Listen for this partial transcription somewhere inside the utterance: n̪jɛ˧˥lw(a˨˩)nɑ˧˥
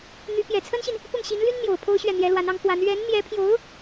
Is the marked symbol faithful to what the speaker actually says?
no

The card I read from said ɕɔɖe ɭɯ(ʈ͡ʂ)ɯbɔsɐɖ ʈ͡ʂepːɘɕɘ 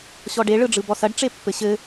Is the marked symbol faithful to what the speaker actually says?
no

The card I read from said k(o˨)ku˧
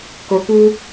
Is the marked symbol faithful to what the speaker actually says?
yes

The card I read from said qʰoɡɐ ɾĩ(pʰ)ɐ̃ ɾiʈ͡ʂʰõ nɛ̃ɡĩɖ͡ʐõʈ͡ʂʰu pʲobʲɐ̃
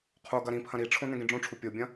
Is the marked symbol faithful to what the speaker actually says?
yes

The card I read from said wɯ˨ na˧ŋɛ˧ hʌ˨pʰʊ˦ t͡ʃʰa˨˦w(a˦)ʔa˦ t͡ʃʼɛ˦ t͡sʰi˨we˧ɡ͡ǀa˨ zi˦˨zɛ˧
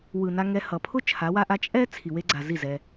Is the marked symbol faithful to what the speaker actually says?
yes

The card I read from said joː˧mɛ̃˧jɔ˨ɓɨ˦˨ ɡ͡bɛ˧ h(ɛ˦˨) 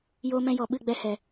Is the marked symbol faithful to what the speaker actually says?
no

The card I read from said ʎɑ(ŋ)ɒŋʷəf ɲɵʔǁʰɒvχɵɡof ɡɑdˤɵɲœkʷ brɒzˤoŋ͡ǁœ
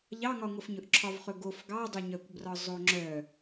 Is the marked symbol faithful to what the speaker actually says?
yes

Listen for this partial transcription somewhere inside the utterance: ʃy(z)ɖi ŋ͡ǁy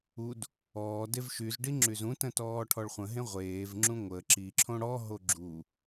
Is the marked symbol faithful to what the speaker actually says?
yes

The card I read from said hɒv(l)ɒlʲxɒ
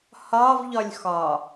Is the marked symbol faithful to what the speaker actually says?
no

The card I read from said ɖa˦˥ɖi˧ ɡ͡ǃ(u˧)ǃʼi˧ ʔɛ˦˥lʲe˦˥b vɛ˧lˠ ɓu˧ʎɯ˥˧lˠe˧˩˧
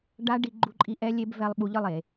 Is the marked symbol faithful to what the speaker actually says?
yes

